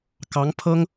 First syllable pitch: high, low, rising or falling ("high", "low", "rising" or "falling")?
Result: rising